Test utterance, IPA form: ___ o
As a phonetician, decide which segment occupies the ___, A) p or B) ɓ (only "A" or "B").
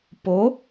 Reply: A